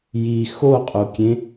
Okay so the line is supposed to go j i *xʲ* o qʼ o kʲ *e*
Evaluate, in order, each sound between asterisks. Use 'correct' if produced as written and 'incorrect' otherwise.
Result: incorrect: x, incorrect: ẽ

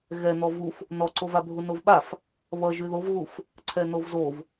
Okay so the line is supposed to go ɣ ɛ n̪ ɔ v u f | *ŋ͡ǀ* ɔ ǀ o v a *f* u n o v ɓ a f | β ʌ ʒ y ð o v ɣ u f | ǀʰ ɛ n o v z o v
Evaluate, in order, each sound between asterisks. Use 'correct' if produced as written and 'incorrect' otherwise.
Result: incorrect: n, incorrect: bʱ

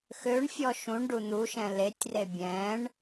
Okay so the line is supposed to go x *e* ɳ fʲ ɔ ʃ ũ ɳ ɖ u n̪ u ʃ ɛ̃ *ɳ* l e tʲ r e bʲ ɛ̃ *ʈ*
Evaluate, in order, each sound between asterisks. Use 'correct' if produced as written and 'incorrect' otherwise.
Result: incorrect: ø, incorrect: none, incorrect: ɳ

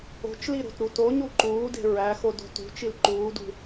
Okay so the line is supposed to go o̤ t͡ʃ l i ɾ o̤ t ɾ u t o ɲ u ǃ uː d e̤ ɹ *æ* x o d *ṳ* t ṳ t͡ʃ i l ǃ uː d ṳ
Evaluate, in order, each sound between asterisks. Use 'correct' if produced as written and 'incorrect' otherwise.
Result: correct, incorrect: o̤

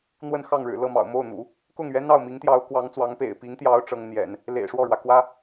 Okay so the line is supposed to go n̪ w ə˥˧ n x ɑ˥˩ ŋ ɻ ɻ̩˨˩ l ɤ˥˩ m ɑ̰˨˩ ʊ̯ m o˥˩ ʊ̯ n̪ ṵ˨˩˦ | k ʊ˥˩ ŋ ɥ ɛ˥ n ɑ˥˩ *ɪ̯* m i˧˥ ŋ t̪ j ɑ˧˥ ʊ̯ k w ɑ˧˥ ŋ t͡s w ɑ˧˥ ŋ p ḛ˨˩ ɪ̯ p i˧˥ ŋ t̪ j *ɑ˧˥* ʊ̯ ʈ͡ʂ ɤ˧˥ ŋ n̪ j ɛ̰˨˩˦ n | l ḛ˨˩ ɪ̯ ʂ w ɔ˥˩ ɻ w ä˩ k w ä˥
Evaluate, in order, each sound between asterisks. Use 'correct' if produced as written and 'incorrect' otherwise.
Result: incorrect: ʊ̯, correct

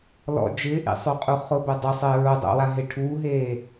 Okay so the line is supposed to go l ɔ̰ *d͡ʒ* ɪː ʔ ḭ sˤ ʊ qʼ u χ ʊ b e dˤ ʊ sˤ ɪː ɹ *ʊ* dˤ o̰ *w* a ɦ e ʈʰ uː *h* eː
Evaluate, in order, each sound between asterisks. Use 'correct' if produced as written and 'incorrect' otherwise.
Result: correct, correct, correct, incorrect: ɦ

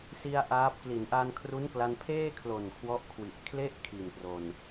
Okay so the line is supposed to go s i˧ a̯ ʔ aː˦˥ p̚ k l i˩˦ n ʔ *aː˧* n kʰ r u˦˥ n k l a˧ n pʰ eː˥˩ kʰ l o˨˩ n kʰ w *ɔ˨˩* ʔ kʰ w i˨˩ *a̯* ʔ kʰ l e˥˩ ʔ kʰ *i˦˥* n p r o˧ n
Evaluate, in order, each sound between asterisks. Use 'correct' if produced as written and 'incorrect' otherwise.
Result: correct, incorrect: ɔ˦˥, incorrect: none, incorrect: i˨˩

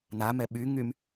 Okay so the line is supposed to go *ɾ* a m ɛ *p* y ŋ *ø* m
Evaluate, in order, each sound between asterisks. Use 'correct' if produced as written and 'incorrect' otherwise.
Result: incorrect: n, incorrect: ɓ, incorrect: y

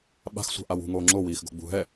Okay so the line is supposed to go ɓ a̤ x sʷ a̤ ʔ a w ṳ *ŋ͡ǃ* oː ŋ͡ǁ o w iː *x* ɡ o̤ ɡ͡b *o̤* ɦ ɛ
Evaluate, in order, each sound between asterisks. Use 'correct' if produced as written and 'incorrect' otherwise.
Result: incorrect: ŋ, correct, incorrect: ṳ

